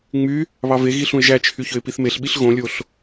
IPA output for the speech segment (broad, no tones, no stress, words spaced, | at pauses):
ŋ͡my | βɑveɣi ɬũɪ̯ʒæt͡ʃʰy çøɪ̯piθmeɬɓiɬ ɣõlʲoɬ